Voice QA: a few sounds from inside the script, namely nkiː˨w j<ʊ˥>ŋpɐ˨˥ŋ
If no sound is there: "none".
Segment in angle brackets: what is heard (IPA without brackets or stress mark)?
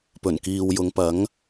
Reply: ʊ˨˧